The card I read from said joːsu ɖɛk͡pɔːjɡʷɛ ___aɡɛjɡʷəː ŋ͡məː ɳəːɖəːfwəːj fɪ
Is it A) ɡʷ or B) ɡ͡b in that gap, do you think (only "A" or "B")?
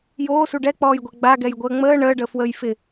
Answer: B